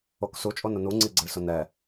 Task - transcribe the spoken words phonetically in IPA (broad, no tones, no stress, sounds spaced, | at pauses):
o k s u t͡ʃʼ o n ʊ n u ŋ͡ǀ i ɡ͡ǀ ə ɭ s ʊ n ɛ